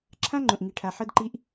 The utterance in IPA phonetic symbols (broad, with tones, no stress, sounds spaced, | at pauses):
ǁʰ ã˦ ŋ͡ǃ õ˨ ʔ ŋ i˨ ʈʰ a˨ ħ ɤ˦ d ǃ i˦ ʔ